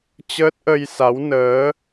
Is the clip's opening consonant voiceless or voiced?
voiceless